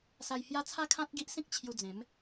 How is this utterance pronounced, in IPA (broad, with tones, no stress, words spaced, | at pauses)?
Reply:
sa˧jhja˦ t͡sʰa˦kʰã˦t̚ɡi˦ʔsĩ˦k̚ t͡ɕʰju˧d͡zẽ˨˦m